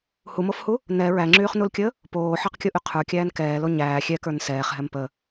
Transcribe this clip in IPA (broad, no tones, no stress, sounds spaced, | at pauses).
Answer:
h u m o f h u | n ɛ ɹ æ ŋ͡ǁ yː χ n u l kʲ əː | p oː ħ ɑ q kʲ o ʔ y qʰ ə˞ kʲ æː n k ɛː l o ɲ æː xʲ ɛ k ə˞ n s ɛː χ ɦ ɛ m p ə